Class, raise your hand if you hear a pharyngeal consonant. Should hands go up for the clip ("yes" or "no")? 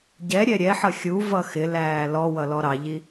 yes